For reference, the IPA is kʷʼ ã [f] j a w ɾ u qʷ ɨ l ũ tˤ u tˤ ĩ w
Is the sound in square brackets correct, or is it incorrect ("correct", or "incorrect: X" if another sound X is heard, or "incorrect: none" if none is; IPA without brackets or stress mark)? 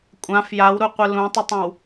correct